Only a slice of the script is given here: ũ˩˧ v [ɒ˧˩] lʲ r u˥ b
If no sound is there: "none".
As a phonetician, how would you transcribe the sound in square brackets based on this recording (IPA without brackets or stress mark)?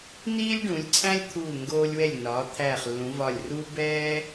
ɒ˧˩